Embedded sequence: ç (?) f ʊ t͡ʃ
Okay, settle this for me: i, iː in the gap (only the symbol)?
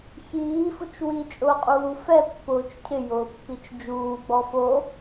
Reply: iː